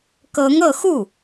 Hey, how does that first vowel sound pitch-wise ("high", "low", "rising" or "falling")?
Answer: rising